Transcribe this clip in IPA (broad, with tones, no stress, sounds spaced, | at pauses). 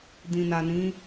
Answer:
d ĩ˨ n a˨ n ĩ˨˦